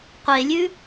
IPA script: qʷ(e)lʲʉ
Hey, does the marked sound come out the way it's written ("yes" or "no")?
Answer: yes